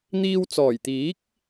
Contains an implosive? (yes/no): no